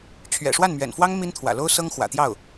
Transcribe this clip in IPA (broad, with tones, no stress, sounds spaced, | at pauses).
t͡ɕʰ ɥ ɛ̰˨˩ ʂ w a˥˩ n m ɥ ɛ̰˨˩ n f w ɑ˥ ŋ m i˥ n t̪ʰ w ä̰˨˩ l o˥ ʊ̯ s ɤ˥ ŋ x w ä̰˨˩ t̪ j ɑ˥˩ ʊ̯